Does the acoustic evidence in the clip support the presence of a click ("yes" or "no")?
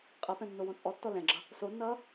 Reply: yes